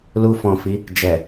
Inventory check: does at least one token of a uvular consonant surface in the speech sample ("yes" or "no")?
no